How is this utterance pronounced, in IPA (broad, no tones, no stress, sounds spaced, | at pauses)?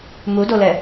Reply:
m u d o l ɛ